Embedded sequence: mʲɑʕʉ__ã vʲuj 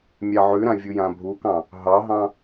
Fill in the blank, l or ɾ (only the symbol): ɾ